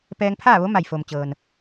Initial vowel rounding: unrounded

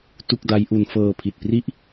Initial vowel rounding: rounded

